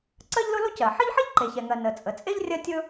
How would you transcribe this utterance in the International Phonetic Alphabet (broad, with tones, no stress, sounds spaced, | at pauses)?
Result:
ǀ ɜ˥ ʎ l ʊ˥ l o˥ c ɜ˩ ħ ə˥ ʎ ħ ə˥ ʎ ǃ e˩ ç ɛ˩ ŋ ɜ˩ n ə˩ t͡sʼ ə˩ t͡sʼ e˥ ʎ rʲ ɜ˥ tʲ ɵ˥